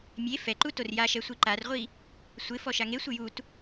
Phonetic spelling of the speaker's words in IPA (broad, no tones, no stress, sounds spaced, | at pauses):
mʲ e f ɛ ǃ u t o r j a ʃ ɛ sʷ i ǃ a r ʁʷ i | sʷ ɪ f ɔ ʃ a ŋ e sʷ ɪ j u t